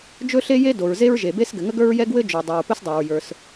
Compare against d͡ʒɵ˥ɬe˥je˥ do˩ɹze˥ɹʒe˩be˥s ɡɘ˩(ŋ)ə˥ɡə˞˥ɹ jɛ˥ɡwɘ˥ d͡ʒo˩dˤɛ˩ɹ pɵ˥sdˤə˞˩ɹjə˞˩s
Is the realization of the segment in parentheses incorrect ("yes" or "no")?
no